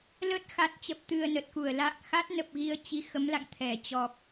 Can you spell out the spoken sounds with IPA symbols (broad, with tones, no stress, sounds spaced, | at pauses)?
l ə˦˥ t̚ x a˨˩ t̚ t͡ɕ ə˨˩ p̚ t̪ ɨ˨˩ ə̯ n ə˨˩ t̚ k u˧˩ ə̯ l a̰ː˧˨ ŋ x a˦˥ t̚ n ə˨˩ p̚ ɣ i˧ ə̯ t͡ɕ i˨˦ x ə˨˦ m l a̰˧˨ ŋ t̪ʰ ɛ˧˩ t͡ɕ ɔ˨˩ p̚